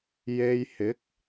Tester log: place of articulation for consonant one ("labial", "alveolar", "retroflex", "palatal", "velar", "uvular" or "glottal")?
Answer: palatal